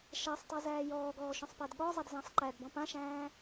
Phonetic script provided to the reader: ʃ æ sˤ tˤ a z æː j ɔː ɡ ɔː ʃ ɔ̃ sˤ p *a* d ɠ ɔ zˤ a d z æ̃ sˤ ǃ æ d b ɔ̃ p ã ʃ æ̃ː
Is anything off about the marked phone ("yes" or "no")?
yes